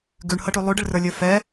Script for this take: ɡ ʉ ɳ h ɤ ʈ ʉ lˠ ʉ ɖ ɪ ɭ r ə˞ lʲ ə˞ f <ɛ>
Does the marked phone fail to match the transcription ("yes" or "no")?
no